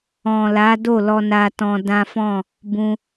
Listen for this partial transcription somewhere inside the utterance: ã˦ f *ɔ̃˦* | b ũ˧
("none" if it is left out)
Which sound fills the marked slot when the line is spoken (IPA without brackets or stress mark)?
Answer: ɔ̃˦˨